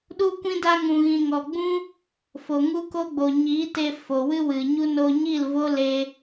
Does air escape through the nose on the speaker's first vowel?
no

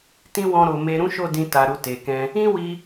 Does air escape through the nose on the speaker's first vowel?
yes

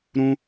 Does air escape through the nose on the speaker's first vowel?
yes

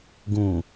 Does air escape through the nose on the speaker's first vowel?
yes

